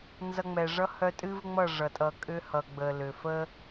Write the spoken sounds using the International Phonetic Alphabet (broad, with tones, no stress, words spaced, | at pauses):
nzʌ˧ŋ͡mɛ˨ʐʌ˦ hœ˧tʼɨ˦vŋ͡mʌ˦˨ ʐʌ˨tʼʌ˧ kʼʏ˦hʌ˨ɡ͡bə˨ lʏ˨fə˦